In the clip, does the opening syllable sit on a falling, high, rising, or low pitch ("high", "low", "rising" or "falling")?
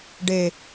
low